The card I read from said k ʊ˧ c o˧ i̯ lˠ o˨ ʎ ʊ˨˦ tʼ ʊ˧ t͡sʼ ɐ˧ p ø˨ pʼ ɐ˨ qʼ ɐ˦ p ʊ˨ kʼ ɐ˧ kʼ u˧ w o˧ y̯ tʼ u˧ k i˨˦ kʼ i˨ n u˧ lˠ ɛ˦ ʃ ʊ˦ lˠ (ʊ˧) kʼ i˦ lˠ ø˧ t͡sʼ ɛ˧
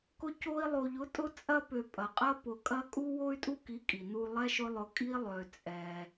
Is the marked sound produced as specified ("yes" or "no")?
yes